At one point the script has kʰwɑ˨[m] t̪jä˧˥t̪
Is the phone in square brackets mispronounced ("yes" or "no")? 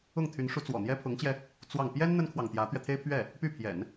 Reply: yes